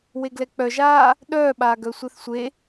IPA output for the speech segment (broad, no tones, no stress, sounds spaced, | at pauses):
w e ɡ l ɛ k͡p œ ʒ aː | ɗ œː ɓ aː ɡ œ sʷ ɛ θ sʷ e